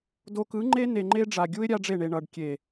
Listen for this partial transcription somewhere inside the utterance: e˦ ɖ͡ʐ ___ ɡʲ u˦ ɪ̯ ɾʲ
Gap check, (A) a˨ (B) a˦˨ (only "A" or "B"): A